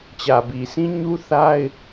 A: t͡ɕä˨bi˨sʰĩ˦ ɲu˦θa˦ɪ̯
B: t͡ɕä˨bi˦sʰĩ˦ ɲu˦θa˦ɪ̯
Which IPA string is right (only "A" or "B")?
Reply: A